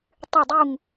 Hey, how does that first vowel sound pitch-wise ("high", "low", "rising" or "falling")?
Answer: falling